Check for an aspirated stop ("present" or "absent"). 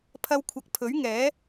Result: present